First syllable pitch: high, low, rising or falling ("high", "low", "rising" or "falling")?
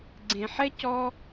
low